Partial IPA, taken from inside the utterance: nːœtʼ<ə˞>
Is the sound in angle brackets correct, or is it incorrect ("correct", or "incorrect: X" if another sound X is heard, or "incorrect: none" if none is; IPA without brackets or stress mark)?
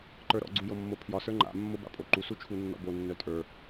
correct